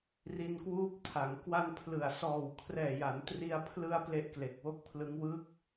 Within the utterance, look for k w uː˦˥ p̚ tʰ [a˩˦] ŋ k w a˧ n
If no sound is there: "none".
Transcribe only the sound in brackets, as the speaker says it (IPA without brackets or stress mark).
a˩˦